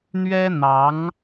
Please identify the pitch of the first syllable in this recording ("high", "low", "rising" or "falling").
high